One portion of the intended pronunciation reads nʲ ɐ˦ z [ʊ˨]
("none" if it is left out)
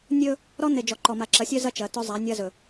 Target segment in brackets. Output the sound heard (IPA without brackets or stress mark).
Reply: ɵ˨